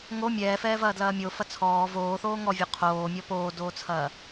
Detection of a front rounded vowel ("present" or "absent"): absent